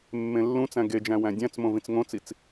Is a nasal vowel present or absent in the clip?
present